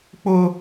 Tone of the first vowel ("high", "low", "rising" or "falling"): high